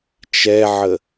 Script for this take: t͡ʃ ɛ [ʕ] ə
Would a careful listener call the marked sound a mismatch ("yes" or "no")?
no